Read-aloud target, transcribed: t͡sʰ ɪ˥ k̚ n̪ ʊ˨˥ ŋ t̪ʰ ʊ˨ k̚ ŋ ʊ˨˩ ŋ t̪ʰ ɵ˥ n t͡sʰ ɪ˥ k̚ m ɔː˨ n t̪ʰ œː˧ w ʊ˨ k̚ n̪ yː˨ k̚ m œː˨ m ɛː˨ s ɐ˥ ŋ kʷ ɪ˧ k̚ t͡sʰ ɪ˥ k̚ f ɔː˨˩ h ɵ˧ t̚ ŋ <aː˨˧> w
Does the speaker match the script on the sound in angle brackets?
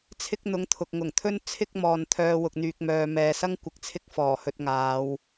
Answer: yes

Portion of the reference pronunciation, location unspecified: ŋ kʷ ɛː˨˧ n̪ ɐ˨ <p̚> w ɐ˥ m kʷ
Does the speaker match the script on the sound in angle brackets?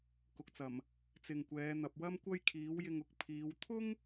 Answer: yes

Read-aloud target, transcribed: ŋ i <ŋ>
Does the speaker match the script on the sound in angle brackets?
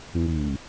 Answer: no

